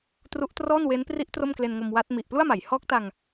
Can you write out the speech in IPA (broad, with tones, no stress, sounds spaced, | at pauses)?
t r u˦˥ ʔ t r ɔː˥˩ n w e˦˥ n p r i˦˥ ʔ t r o˥˩ m k l e˧ n ŋ o˧ m w a˦˥ t̚ m i˨˩ ʔ p l u˥˩ a̯ m a˩˦ j h ɔː˦˥ k̚ t a˧ ŋ